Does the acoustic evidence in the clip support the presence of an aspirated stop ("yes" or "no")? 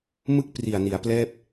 no